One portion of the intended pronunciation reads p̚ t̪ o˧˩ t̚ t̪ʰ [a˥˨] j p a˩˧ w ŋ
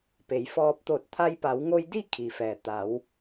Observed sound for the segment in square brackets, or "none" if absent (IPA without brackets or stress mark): a˧